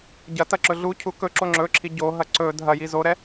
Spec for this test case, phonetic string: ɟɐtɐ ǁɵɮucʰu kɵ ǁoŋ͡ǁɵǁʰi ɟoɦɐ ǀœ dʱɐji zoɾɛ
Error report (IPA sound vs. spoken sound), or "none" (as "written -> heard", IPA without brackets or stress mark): œ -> ɵ